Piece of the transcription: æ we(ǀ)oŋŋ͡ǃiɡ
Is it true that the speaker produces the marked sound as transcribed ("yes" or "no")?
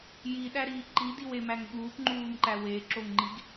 no